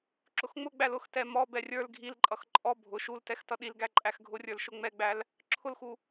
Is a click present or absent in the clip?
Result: present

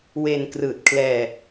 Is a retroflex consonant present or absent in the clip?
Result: absent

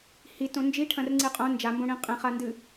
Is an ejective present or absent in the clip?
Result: present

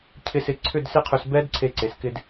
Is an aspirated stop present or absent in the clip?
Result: present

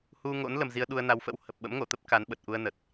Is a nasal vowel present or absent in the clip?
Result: absent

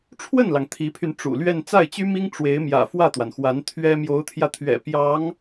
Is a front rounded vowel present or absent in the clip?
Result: present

